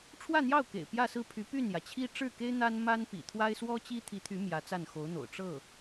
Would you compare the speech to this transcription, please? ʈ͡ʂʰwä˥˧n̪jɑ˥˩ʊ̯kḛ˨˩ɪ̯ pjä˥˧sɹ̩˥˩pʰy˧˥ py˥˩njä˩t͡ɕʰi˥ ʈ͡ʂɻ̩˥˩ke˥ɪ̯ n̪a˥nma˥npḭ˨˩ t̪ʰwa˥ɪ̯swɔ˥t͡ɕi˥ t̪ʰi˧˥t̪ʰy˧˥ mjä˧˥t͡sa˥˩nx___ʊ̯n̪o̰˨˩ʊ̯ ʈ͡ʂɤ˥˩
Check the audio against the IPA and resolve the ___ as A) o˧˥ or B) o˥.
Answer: A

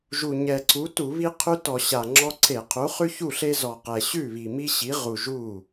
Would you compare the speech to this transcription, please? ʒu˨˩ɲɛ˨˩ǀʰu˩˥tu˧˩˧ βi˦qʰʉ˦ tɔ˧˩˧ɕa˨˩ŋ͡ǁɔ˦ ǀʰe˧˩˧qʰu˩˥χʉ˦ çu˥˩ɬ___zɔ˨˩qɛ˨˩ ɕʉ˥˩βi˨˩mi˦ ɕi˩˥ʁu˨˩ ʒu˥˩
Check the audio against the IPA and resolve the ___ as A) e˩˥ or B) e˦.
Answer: B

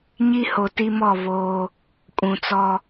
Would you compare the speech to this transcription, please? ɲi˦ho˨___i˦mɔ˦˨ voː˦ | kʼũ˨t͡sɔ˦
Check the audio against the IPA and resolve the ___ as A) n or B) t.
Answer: B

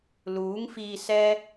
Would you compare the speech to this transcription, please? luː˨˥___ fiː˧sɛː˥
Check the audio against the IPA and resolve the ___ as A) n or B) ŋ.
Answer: B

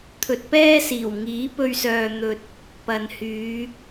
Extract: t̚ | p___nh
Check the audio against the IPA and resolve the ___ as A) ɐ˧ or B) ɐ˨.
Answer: B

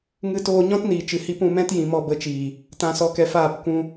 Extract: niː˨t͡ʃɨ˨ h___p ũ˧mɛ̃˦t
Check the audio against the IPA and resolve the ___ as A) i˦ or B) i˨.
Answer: A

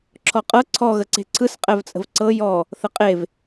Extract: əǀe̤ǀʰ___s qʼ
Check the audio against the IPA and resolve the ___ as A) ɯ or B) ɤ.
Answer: A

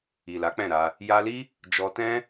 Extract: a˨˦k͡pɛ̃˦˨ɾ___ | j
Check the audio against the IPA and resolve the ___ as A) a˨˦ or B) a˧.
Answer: B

